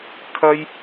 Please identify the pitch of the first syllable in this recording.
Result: high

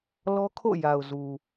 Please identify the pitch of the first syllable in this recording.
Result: high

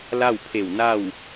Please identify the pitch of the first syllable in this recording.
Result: falling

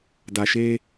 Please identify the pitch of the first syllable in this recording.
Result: low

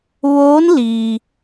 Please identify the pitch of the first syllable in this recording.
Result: rising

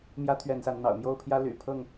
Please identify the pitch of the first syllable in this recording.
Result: high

